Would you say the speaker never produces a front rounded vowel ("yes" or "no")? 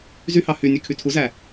no